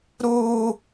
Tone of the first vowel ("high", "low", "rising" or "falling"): high